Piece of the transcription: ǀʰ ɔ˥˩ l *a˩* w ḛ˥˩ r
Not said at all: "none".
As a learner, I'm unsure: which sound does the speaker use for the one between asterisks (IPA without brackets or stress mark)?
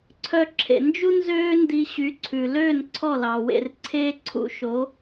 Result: ɑ˩